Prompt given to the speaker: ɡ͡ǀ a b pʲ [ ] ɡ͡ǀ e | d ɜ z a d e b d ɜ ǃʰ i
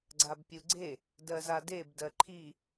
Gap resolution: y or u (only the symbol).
u